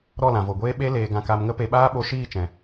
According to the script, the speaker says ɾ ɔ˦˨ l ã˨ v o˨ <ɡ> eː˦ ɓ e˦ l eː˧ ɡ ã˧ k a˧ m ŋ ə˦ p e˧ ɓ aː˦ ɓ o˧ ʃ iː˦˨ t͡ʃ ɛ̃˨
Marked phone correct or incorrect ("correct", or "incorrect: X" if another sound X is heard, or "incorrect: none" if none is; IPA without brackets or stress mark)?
incorrect: ɡʷ